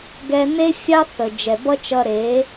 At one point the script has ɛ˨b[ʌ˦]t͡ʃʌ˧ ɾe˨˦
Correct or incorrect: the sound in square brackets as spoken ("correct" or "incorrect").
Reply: correct